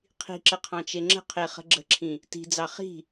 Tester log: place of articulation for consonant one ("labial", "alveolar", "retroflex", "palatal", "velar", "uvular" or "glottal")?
uvular